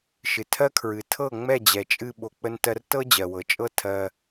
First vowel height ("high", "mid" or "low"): high